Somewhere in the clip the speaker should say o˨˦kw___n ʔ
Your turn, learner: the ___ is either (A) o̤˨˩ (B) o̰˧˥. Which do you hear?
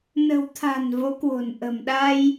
A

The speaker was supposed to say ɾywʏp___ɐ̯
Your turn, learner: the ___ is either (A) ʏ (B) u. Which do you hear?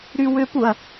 B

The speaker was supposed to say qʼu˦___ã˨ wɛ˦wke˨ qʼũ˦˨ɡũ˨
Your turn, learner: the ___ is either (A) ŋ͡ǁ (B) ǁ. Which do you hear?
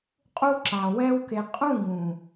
B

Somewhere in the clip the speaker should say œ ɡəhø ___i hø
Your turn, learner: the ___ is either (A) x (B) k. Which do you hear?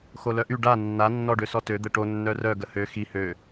A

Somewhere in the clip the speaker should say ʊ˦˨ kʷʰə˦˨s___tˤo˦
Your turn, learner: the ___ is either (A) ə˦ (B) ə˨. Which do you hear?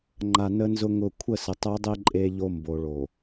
B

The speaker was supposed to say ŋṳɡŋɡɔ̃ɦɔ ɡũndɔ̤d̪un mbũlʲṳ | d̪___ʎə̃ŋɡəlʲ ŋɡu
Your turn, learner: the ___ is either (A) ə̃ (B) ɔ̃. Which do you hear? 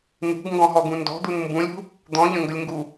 B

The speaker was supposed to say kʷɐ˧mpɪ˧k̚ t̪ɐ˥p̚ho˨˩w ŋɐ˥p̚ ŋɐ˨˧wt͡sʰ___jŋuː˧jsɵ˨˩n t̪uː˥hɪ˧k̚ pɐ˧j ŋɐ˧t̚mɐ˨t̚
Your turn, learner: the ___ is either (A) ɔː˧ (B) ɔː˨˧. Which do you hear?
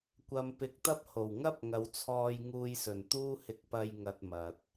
A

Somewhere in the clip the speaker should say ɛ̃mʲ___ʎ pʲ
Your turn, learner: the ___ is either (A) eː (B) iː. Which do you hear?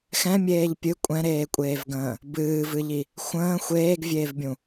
A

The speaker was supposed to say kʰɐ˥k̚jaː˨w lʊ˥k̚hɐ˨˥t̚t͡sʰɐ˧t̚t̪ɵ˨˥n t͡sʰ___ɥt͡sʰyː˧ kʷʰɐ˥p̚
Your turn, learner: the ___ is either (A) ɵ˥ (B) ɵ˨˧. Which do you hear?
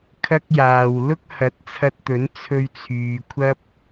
A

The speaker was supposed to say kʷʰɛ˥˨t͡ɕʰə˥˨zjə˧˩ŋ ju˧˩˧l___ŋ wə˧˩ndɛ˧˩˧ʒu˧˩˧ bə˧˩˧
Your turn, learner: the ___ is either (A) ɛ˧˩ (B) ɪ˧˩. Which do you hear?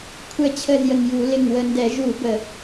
B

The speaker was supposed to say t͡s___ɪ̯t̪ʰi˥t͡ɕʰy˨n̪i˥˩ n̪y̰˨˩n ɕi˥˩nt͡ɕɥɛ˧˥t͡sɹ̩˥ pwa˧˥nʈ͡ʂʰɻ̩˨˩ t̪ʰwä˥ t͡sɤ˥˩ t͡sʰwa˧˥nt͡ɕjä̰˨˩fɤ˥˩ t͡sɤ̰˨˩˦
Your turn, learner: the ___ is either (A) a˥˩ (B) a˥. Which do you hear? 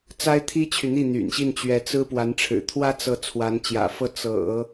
B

